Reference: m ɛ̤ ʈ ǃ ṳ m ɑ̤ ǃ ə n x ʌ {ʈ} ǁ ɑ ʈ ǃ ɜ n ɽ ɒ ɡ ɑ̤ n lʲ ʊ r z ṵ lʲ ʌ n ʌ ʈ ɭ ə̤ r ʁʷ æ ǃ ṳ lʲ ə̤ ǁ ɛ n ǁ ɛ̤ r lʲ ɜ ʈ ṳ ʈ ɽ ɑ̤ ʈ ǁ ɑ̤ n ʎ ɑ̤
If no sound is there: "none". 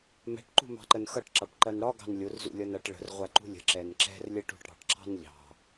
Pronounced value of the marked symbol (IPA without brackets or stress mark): ʈ